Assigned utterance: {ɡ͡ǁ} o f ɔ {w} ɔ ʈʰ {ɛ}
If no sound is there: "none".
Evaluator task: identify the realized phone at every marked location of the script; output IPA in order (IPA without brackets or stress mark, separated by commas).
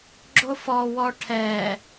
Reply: ɡ͡ǁ, w, ɛ